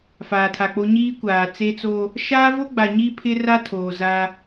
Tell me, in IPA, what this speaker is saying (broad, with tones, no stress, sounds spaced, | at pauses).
f aː˨ tʰ a˨ k͡p o˦ ɲ iː˦ kʷ aː˨ t͡s e˦ t͡s o˦ | ʃ aː˦ v o˦ ɡ͡b a˨ ɲ i˦ pʰ ɪ˦ r a˦ tʰ oː˨ z a˦